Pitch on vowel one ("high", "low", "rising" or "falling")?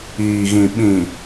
low